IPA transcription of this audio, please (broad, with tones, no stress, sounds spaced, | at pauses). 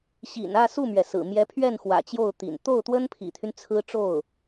ɕ ḭ˨˩ n ä˥˧ s u˥˩ m ɥ ɛ˩ s ɹ̩˨˩ m j ɛ˧˥ pʰ ɥ ɛ˥˩ n x w ä̰˨˩ t͡ɕ j o˥˩ ʊ̯ t̪ ḭ˨˩ n t̪ o˥˩ ʊ̯ t̪ w ə˥ n pʰ ḭ˨˩ t̪ʰ y˦ n t͡sʰ ɹ̩˥ ʈ͡ʂ o˥˩ ʊ̯